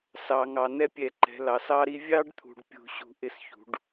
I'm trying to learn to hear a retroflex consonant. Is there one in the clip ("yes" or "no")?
yes